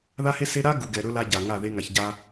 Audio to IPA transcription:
ð a˦ h e˦ s e˦ ɾ a˦ ɡ u˨ ɡ ɛ˨ ɾ ɵ˦ l a˦ ɟ a˨ ŋ a˦˨ ð e˦ ŋ a˨ ç ɟ a˦

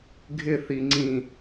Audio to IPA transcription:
ɡʱ ɪ θ i ŋ͡ǀ ĩ

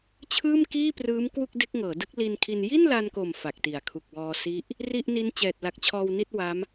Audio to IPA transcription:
t͡ɕʰ ɯː˥˩ m k iː˥˩ p r ɯː˦˥ m k w u˥˩ k̚ d e˦˥ k̚ ŋ ɤː˩˦ d ɯ˦˥ k̚ l i˧ n kʰ i˧ n j i˥˩ n l a˧ n k o˨˩ m f a˨˩ k̚ t i˩˦ a̯ kʰ u˨˩ k̚ w ɔː˧ s i˦˥ ʔ | r i˥˩ ʔ n i˦˥ n t͡ɕ ɛː˨˩ t̚ l a˨˩ k̚ t͡ɕʰ ɔː˧ w n i˥˩ t̚ w a˦˥ m

